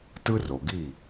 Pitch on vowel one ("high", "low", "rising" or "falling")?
high